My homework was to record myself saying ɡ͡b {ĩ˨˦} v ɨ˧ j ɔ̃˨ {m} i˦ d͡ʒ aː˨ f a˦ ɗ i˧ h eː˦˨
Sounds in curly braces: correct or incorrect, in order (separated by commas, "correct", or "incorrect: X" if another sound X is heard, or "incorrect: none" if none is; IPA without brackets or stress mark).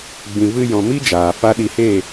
incorrect: ĩ˨, correct